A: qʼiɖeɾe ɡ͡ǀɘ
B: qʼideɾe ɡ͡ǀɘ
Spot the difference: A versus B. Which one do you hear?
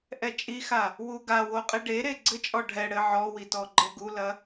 A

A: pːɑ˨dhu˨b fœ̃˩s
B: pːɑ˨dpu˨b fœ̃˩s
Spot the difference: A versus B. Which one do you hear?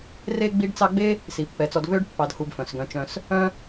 A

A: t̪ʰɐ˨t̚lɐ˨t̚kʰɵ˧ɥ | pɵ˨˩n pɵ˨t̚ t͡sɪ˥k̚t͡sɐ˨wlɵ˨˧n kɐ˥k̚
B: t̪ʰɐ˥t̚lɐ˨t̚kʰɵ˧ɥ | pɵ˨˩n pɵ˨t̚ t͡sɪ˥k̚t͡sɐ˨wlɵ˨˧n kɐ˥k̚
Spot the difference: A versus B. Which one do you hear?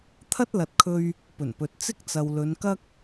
B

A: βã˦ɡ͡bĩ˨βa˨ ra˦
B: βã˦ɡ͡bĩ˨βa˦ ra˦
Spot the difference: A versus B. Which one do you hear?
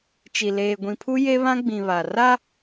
A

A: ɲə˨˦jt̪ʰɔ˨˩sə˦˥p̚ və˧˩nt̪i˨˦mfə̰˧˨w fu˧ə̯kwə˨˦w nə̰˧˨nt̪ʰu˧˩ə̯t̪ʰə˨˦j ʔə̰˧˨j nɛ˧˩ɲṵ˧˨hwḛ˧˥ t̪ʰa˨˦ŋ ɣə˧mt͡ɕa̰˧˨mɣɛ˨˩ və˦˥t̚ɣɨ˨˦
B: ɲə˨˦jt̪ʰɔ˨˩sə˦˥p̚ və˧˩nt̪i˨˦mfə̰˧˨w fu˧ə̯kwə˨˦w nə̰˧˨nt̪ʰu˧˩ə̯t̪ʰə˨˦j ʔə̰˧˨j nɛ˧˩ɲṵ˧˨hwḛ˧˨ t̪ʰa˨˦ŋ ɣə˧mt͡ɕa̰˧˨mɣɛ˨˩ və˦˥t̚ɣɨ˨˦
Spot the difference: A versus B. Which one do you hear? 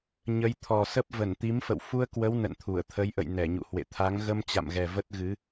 B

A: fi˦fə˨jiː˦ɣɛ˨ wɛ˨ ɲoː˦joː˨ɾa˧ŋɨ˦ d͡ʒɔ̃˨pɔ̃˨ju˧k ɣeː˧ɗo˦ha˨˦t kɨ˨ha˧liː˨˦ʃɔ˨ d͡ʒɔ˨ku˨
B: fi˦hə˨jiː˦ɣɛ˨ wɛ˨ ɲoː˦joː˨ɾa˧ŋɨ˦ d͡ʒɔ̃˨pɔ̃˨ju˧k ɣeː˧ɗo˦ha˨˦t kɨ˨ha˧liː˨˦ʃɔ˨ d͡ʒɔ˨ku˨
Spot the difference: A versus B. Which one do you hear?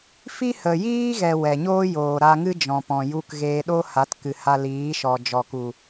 B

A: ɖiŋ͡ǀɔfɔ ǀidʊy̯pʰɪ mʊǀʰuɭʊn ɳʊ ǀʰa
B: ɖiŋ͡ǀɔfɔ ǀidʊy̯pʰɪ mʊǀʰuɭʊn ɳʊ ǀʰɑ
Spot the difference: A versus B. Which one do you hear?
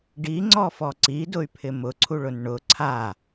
A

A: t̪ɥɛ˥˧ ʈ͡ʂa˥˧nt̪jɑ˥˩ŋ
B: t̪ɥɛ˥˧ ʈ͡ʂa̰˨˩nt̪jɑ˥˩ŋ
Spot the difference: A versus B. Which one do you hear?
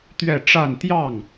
A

